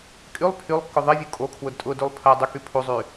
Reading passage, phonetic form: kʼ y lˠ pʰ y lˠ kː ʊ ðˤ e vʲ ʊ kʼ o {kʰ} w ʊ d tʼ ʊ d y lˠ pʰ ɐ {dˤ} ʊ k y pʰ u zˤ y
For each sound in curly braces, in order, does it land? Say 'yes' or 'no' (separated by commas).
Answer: yes, yes